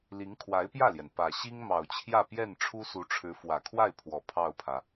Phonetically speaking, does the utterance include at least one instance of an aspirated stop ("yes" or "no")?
yes